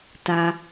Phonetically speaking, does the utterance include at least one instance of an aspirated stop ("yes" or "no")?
no